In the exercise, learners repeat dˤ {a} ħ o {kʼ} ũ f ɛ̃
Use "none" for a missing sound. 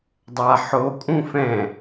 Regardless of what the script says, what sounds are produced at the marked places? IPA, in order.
a, kʼ

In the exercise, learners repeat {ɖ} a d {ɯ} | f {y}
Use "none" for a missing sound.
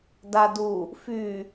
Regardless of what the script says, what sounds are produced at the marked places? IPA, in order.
d, u, y

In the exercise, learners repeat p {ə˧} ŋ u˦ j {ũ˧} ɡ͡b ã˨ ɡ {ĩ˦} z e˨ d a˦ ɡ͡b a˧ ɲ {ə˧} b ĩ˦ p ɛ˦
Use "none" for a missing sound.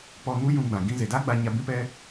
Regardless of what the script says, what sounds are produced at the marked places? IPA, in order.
ɔ˧, ũ˧, ĩ˧, a˧

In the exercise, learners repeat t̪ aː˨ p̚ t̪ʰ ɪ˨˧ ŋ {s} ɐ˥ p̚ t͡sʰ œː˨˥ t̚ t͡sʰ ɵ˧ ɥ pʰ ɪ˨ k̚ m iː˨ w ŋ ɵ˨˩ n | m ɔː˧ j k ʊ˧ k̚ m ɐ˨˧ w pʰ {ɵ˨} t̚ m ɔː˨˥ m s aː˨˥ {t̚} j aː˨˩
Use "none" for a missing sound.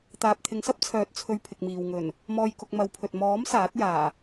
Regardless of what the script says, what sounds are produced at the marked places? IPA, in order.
s, ɵ˨, t̚

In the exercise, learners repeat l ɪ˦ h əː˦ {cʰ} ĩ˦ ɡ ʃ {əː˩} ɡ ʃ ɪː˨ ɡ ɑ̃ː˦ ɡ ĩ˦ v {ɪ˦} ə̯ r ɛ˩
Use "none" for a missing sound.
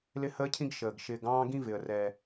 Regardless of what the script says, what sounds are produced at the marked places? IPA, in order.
cʰ, əː˩, ɪ˩

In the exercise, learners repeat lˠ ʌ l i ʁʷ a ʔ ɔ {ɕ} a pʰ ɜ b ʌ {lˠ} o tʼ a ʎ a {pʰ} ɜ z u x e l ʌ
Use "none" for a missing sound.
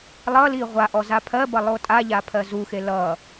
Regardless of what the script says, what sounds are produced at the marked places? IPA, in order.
z, lˠ, pʰ

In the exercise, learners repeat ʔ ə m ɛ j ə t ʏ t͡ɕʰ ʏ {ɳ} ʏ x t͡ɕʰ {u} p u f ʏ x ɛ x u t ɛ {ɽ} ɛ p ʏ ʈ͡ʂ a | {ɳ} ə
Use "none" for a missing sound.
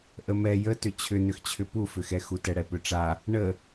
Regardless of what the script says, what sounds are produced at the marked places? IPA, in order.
n, ʏ, ɽ, ɳ

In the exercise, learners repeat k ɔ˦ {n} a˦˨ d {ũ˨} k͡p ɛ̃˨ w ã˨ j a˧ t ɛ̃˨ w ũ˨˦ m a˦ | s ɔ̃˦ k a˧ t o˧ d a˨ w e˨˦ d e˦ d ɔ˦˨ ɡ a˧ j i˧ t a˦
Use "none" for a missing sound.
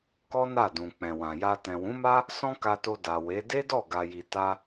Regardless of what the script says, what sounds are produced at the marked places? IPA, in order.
n, ũ˨

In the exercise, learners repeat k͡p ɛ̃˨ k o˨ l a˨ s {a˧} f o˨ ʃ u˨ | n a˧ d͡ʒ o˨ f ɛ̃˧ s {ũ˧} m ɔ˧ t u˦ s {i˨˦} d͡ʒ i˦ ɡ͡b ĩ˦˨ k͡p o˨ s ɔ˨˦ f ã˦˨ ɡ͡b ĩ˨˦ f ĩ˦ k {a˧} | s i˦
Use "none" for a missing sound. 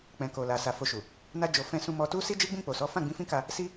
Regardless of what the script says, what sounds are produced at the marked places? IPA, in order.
a˨, ũ˧, i˦, a˧

